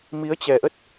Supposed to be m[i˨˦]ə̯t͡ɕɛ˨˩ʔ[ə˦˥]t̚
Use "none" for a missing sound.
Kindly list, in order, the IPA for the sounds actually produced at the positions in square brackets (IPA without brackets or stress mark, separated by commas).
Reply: i˨˦, ə˦˥